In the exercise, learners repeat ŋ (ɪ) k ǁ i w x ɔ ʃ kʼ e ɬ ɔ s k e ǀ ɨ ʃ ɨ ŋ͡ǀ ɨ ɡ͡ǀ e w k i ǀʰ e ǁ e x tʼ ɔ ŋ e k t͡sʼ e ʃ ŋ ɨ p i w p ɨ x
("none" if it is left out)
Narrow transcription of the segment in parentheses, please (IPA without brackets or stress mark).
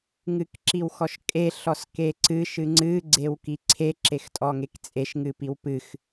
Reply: ɨ